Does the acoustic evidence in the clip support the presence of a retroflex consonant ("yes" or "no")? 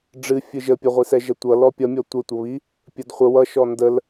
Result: yes